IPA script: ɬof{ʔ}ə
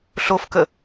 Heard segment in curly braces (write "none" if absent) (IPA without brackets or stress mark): k